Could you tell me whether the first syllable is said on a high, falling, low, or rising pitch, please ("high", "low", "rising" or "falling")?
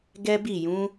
high